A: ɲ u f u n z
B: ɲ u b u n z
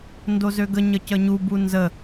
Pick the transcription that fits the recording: B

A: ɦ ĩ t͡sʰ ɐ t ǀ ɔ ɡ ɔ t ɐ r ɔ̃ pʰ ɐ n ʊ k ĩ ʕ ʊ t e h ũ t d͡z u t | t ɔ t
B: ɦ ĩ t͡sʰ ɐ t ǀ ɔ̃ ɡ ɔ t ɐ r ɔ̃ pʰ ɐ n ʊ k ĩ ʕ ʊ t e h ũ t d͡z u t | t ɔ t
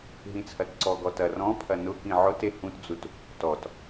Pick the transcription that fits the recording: A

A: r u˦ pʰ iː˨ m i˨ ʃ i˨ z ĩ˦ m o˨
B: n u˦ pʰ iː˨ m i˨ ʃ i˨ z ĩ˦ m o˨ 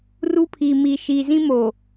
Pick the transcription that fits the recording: A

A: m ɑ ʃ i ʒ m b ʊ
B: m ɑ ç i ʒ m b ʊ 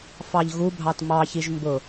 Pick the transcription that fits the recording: B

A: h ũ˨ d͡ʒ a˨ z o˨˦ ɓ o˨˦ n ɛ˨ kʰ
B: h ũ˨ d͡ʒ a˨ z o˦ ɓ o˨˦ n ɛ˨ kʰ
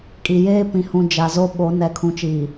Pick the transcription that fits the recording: B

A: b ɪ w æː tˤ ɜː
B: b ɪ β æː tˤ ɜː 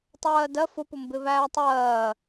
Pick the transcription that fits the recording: B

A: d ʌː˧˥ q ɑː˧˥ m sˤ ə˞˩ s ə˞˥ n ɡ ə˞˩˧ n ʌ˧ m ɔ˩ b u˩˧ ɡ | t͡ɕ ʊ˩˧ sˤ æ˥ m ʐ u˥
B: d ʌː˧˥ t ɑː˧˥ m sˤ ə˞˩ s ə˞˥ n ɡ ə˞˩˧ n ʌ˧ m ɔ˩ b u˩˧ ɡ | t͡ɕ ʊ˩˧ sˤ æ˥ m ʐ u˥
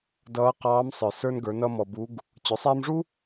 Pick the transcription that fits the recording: A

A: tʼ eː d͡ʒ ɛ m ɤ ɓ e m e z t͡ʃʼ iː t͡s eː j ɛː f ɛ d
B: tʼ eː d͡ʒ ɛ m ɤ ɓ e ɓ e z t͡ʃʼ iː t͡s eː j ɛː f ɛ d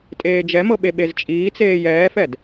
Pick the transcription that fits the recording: B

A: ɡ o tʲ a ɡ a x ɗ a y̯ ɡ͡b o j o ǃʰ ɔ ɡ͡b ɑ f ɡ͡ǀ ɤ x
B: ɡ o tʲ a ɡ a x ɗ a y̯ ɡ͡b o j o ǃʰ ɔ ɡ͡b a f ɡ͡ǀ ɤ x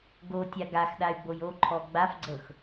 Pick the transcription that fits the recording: B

